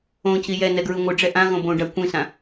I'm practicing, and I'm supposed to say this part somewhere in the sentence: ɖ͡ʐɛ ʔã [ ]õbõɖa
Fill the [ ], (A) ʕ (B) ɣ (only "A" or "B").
B